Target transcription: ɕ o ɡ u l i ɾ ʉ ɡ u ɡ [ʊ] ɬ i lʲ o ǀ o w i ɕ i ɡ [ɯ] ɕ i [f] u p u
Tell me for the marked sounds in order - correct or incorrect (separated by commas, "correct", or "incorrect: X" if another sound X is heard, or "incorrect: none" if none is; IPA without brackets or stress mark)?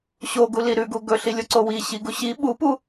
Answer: incorrect: ɵ, incorrect: u, incorrect: ɓ